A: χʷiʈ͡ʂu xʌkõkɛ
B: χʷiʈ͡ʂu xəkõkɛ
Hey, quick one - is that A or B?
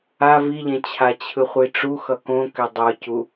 A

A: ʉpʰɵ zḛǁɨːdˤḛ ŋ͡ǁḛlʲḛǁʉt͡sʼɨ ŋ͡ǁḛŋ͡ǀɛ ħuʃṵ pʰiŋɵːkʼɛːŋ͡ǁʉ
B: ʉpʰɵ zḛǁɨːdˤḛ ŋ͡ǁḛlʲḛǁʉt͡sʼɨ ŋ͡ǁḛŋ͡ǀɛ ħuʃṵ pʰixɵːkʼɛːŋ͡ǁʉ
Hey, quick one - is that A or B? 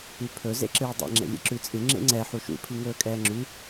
A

